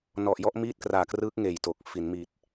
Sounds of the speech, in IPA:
n ɔ˨˩ ʔ j ɔ˦˥ ʔ m iː˥˩ t̚ k r aː˨˩ k r ɯː˦˥ k̚ ŋ eː˨˩ j t o˨˩ k̚ f i˩˦ n m i˨˩ t̚

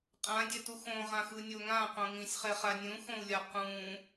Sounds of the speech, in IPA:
qʼ ã dʲ ɛ t u x õ ʁ ã x ɯ nʲ o ŋ ã q õ ŋ ĩ sʲ χ ɛ χ a nʲ ũ x õ u̯ lʲ a q ũ

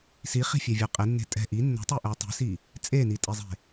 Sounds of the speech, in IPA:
s i χ i̤ fʲ ɛ vʲ ɜ qʼ e nː e̤ tʼ ɛ̤ ʔ i nː ɛ̤ tˤ e ʔ ɜ tˤ i̤ s i | t͡sʼ e n i tʼ i zˤ e̤

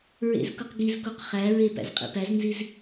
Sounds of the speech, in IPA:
ɹ ḛ z k u q ɡ i z k o q χ æ ɹ e p æ̰ z qʼ ḭ p æ z n z i z

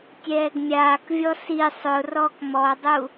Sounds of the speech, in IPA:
tʲ ɛː ɡ mʲ aː k vʲ ɔ s i sˤ ʊ r ɔː k m ɔ dˤ u

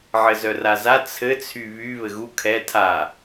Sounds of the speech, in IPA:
ʕ ɘ z œ r a z a t͡sʰ ɘ t͡sʰ y β y β ɘ ɣ u kʰ ɛ tʰ a

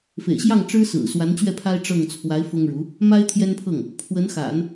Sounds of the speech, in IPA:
f ḛ˨˩ ɪ̯ ɕ j ɑ˥˩ ŋ ʈ͡ʂ ɻ̩˥ s ɹ̩˨˩ s w a˧˥ n t͡ɕ ɥ ɛ˥˩ pʰ a˥ ɪ̯ ʈ͡ʂ ɤ˥˩ ŋ t͡sʰ w a˧˥ ɪ̯ f ʊ˥ ŋ ɻ u˧˥ | m a˥ ɪ̯ t̪ʰ j ɛ˥ n pʰ ɤ˥˩ ŋ | pʰ w ə˧˥ n x a̰˨˩˦ n

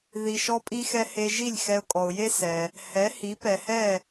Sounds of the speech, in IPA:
ð i˩ ʃ ɔ˧ pʼ i˧ x ɛ˧ h e˧ ʒ i˥˩ lʲ x ɛ˧ ʊ̯ kʼ ɔ˩ ʊ̯ j e˥ s ɛ˩ | h ɛ˩˥ h i˩˥ p ɛ˩ h ɛ˥˩

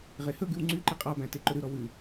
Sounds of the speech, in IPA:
ʁ e h ɵ ɡ ʉ w ŋ͡ǀ y ǃ i qʼ ɑ b æ̃ t e ǃ ɵ ɾ ʉ ɾ ɔ w ʉ

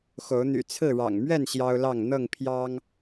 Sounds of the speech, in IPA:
x o˨˦ ʊ̯ n̪ y̰˨˩ t͡sʰ ɹ̩˥˨ ɻ ɑ̰˨˩ ŋ m ɥ ɛ˥˨ n ɕ j ɑ˦ ʊ̯ l ɑ˥˨ ŋ n̪ ɤ˥˨ ŋ pʰ j ɑ˦ ŋ

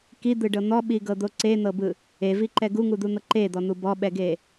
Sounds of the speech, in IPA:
k i d̪ ɯ ɖ ɤ n̪ ɔ ɓ i ɡ ɤ d̪ o ǀ e n̪ ɤ b ɯ | e v i ǃ ɛ ɡ u ŋ u d̪ u n̪ ɤ ǃ e d̪ ɔ n̪ u b ɔ ɓ ɛ ɡ e

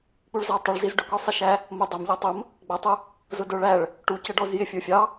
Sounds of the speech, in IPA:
k͡p u ɭ z ɔ tˤ ɪ ɭ z i z ɖ ʊ k ɔ sˤ i ʃ æ | m ʊ dˤ ʊ m ʎ ɔ tˤ ʊ m | ɡ͡b ʌ tˤ u | z ʊ d ə˞ ɭ æ ɭ | ʈ u c ə ɖ ɔ z j ɪ fʲ ə˞ fʲ ɑ

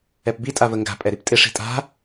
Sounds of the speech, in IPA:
ɛ p b i tʼ a v ə ŋ ɡ a̤ pʼ ɛ ɾ i p tʼ ɪ ʂ i̤ tʼ a̤

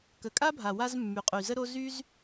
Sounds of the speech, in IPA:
k ə˨ kʼ a˦ bʱ a˨ w a˧ z mː y˨ qʼ y˨ z ə˦ ɾ o˦ z y˦ z

